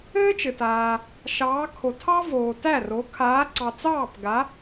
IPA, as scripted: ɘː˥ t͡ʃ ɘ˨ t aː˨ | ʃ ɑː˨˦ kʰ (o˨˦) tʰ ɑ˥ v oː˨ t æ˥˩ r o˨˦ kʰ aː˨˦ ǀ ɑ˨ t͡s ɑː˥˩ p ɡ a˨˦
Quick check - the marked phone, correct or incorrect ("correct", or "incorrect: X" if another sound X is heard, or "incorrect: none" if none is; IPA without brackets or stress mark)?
incorrect: o˨